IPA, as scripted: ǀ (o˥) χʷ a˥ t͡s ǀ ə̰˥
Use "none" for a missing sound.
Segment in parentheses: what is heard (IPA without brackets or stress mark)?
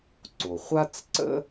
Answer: o˩